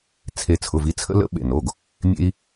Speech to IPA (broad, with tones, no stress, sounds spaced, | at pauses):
t͡sʰ e˧˩ t͡sʰ ʊ˩˧˩ v i˨˦ t͡sʰ ə̰˥ l ə̰˥ ɓ ḛ˧˩ n o˩˧˩ ɡ | mʲ ḛ˥ i̯